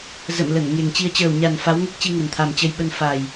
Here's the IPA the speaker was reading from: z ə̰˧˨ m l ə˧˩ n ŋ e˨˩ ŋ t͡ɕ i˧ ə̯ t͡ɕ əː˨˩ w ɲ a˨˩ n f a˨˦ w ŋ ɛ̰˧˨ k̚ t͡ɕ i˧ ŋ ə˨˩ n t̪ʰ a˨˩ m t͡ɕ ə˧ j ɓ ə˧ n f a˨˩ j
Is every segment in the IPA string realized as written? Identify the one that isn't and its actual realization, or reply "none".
ɛ̰˧˨ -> ɛ˦˥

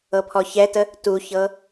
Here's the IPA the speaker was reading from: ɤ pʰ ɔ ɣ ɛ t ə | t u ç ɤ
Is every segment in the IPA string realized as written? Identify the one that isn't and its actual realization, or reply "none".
ɣ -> ç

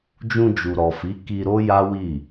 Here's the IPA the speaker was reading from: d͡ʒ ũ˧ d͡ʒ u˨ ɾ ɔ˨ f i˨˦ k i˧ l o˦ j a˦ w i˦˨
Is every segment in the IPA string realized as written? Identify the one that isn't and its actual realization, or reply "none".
l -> ɾ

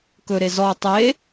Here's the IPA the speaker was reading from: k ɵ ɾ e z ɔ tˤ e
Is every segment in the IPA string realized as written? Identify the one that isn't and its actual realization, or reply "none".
none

